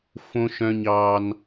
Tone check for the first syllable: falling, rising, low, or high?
high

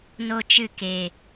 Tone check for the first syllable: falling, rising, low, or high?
high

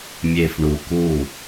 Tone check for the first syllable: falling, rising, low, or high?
low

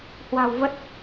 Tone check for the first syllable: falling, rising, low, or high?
low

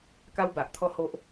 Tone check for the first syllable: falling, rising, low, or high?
high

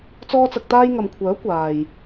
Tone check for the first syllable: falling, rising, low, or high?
high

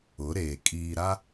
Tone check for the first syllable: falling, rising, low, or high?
rising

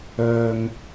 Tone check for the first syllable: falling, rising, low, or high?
low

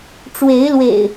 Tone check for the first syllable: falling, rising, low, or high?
rising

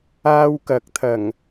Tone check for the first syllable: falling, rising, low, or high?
high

